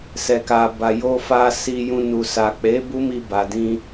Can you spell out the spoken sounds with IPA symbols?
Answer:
sɛ˨ka˨ ba˨ jo˧fa˧ si˧jũ˧ nu˨ sa˨k͡pe˨˦ bu˦mi˧ ba˨dĩ˧

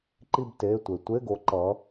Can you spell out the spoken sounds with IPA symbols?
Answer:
ǃi˦˨bte˩˧˩tʷe˩ tʷe˧˥˧ɡo˨˦ ǃʌ˨˦

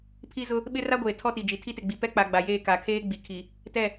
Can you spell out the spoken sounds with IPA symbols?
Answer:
pʰi˦zʊ˦ | ɓɪ˦ra˦ɡʷeː˨ tʰɔ˦ti˨d͡ʒi˨ tʰi˦tɪ˨ɡ͡bi˨ pɛ˦k͡pa˨ ɡ͡ba˨jeː˦˨ka˨ kʰeː˦ ɡ͡bi˨kʰi˨ | tɛ˦˨

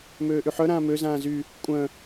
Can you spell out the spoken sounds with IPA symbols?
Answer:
møːʔyħœ ɾãːmø zãːzy | kʷʼœ̃

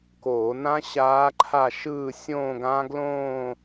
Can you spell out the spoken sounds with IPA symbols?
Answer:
koː˧˩˧nã˦˥ ɕaː˦˥ǃʰa˥˧ʃɯː˥˧ sʲõː˥˧ɡã˦˥ɡlõː˥˧

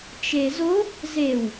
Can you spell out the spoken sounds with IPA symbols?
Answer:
t͡ʃezo | zew

